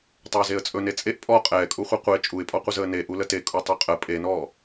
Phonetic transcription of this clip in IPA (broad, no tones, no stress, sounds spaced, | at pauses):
tˤ ɵː z e ə̯ t͡sʼ ɵ n e t͡sʼ e ʔ pʼ ɔ qʼ ɛː kʼ u χʷ ɛ qʷ e t͡ʃʼ u ɪ̯ pʼ ɔ qʷ ə z əː n e ʔ u l ə t e kʼ u tˤ ɵ qʼ ə pʼ e n ɔ